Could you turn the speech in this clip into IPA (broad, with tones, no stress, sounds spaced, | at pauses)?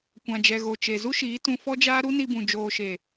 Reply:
kʷ ã˨ d͡ʒ ɛ˨ ɣ o˨ t͡ʃ e˨ z u˦ ʃ iː˨˦ t ũ˧ f ɔ˦ d͡ʒ aː˦ ɾ u˦ n i˧ b ũ˨ d͡ʒ oː˨ ʃ e˨